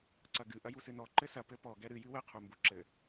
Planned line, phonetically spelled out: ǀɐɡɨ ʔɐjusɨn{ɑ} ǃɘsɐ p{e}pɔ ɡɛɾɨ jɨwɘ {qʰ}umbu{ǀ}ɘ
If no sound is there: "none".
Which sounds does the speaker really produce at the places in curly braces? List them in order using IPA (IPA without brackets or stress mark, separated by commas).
ɔ, ɘ, qʰ, ǁ